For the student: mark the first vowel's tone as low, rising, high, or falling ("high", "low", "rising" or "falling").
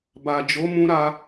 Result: low